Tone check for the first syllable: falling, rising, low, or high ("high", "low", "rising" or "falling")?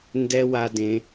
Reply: high